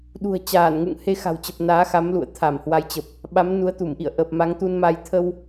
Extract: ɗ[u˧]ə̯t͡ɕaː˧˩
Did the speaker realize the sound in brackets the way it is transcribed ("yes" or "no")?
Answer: no